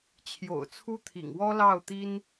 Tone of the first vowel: low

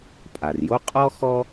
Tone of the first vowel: low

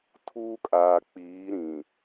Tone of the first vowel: high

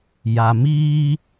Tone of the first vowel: low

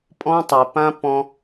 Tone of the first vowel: high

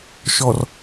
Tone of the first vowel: low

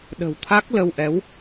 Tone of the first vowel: low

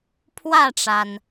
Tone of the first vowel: falling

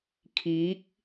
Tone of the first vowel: rising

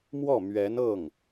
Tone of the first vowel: falling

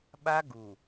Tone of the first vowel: high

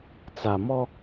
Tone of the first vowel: low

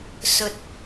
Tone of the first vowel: low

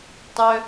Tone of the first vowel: high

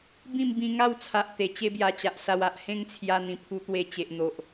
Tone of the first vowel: falling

